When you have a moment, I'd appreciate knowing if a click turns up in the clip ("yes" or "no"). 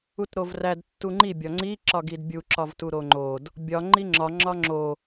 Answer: yes